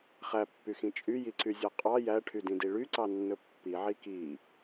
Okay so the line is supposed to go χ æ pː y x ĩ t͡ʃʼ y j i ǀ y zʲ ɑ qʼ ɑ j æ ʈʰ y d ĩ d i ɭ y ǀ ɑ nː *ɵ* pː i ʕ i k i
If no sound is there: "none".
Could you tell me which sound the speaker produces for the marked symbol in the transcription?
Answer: ɵ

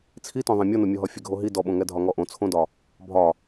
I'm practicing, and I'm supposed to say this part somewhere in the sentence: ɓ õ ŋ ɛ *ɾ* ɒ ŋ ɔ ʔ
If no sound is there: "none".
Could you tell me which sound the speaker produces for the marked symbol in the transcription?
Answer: dʱ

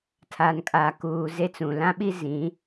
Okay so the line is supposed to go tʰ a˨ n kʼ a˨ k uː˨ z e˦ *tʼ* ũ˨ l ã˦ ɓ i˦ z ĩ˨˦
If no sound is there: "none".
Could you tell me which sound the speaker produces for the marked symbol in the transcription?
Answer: t͡s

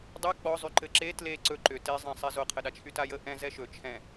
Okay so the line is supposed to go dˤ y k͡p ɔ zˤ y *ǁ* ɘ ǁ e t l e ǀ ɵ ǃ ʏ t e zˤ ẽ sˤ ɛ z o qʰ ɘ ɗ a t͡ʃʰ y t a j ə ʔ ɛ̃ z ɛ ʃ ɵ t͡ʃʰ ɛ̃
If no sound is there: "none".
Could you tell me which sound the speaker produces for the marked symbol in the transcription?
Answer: ǃ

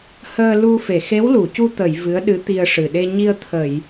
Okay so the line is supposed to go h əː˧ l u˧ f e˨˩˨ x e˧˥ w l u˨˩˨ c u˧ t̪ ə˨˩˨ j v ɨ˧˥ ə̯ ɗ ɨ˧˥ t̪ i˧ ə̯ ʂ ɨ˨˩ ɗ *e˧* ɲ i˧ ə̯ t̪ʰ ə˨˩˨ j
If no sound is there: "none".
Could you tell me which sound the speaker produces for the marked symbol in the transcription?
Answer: e˧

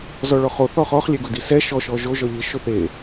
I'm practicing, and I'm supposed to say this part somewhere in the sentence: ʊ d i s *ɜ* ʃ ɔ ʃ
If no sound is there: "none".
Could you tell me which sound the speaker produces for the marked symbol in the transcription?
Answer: ɛ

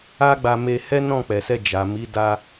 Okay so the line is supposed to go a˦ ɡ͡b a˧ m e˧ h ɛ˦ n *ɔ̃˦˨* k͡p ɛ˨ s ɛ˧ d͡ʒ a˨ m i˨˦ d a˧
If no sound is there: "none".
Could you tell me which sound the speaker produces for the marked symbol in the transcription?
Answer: ɔ̃˦˨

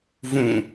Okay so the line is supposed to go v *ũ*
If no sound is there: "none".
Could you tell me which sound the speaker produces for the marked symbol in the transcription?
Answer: ũ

